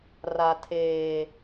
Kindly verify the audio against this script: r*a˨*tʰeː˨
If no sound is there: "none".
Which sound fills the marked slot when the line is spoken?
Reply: a˨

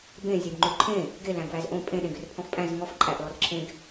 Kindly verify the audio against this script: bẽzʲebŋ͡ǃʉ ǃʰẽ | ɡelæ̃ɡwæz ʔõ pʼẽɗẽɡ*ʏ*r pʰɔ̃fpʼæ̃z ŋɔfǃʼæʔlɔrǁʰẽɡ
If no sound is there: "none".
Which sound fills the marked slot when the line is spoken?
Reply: ʏ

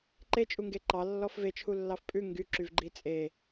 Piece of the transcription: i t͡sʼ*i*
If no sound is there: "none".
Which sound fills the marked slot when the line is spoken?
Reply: e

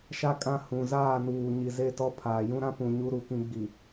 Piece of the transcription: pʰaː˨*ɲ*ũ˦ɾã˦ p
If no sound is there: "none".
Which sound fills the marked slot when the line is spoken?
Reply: j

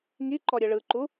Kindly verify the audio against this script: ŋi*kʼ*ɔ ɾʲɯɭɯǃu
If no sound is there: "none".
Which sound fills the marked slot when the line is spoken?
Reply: ǃ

